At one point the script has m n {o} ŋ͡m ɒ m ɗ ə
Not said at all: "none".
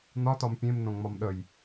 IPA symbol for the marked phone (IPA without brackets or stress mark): õ